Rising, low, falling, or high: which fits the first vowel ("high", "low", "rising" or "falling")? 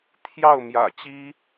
falling